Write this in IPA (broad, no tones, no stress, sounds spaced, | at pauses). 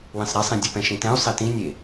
w ĩ sˤ ɾ e sˤ ĩ dʲ ɯ p ɛ̃ ʃ ĩ t ɛ̃ u̯ sˤ i t ĩ nʲ e